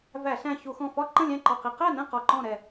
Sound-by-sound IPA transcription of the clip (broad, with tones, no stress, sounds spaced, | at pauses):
v æ˧˩˧ ɬ æ̃˧˩ ç u˧˩˧ x ɔ̃˧˩ f ɒ˥˨ ǃ ə̃˥˨ lʲ æ̃˥˨ ǃ ɒ˧˩ q i˧˩˧ q æ˥˨ n ɛ̃˥˨ q ɒ˧˩ ǃ ɔ̃˥˨ ɾ ɛ˧˩